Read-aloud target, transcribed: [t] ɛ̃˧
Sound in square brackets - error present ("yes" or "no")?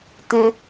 no